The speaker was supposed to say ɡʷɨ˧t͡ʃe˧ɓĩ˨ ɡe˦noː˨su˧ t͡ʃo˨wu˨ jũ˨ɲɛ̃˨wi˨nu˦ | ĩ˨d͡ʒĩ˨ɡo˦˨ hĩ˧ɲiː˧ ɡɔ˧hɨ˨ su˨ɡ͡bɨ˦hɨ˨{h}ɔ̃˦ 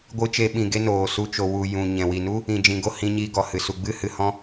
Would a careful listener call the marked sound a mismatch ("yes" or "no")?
no